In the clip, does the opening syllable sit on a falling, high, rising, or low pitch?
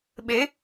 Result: rising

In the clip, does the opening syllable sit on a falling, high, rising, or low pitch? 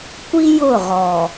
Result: high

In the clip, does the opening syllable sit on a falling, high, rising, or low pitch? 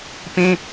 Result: high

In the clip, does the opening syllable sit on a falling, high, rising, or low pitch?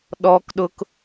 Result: high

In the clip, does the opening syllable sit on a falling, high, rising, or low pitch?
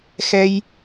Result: high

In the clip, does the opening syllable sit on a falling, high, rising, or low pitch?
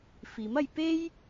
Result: rising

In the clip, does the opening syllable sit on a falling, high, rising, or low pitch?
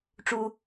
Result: low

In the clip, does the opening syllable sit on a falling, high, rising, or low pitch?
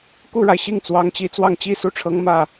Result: falling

